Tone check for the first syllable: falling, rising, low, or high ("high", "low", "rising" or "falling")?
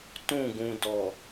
falling